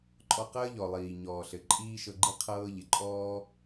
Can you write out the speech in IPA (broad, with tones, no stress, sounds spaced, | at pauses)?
ǃʼ ɔ˧ q əː˥ ʎ ɔ˩ lˠ iː˩ ɲ ɔː˩ ɬ ɘ˩ ǃʼ iː˥ ʃ ɤ˧ ɡ͡ǃ i˥ qʰ ɤː˥ ʎ ɪ˩ ǃʼ ɔː˥